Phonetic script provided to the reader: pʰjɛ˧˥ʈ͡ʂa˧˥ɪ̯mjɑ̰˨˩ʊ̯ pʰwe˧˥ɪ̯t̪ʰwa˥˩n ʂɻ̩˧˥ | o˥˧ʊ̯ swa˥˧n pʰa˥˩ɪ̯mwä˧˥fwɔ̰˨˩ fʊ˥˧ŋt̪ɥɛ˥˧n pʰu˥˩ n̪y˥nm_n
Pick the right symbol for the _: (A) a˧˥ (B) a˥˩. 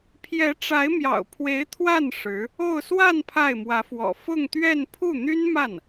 B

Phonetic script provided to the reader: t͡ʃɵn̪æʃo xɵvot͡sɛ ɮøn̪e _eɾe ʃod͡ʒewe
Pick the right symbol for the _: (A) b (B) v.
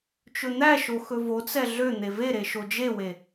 B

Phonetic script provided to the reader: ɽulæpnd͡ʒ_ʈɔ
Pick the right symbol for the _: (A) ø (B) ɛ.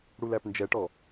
B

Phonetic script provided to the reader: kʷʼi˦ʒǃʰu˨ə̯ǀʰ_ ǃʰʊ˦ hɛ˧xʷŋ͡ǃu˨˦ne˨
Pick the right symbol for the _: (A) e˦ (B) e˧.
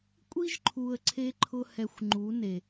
B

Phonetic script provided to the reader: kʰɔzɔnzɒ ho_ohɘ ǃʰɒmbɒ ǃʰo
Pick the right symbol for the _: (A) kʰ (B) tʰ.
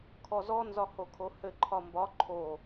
A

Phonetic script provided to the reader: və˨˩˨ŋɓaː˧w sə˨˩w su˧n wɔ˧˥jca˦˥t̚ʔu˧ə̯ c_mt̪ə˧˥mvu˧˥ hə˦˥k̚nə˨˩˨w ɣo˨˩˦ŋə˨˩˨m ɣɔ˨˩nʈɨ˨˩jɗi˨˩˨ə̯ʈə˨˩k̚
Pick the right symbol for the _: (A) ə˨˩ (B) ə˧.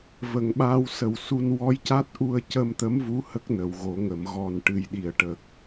B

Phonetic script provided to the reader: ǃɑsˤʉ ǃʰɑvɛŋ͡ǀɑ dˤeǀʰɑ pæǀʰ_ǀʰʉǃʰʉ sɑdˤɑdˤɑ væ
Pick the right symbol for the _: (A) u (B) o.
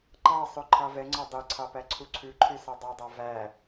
A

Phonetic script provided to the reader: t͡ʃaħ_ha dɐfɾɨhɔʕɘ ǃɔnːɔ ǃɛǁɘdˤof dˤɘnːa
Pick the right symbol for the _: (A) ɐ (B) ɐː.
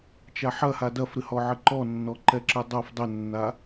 A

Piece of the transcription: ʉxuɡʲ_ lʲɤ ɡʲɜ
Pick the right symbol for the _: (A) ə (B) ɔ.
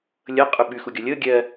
B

